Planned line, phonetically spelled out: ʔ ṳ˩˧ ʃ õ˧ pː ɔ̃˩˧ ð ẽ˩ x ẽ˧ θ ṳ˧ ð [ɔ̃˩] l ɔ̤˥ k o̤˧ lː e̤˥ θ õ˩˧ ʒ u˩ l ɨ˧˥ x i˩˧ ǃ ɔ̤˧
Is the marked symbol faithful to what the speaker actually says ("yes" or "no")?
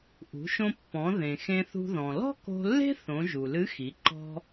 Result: yes